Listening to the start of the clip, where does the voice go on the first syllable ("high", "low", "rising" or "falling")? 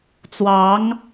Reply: rising